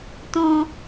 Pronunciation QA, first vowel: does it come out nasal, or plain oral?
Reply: nasal